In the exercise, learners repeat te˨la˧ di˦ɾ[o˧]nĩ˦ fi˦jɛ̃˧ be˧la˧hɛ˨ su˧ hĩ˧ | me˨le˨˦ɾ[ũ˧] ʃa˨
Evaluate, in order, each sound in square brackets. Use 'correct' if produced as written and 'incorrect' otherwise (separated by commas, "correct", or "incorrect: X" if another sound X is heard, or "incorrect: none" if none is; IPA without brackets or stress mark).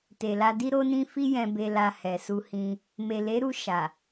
incorrect: o˦, incorrect: u˧